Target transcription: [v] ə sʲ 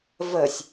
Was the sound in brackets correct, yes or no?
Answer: yes